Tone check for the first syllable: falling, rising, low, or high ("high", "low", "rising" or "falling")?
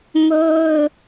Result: high